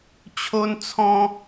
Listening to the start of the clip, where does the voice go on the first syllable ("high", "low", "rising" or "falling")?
high